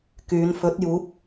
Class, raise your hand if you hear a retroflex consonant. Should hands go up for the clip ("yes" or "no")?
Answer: no